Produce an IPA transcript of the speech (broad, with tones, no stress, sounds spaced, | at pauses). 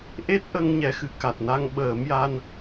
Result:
ʔ e˦˥ t̚ ʔ ə˧ ŋ ɲ ɛ˧ x ɨ˧˥ k a˨˩ t̚ n a˧ ŋ ɓ əː˨˩˦ m j a˧ n